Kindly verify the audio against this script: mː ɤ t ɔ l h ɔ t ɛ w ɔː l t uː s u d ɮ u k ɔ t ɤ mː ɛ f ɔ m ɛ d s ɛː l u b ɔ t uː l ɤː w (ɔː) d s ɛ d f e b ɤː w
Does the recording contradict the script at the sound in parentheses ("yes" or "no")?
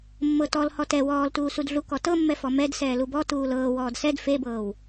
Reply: no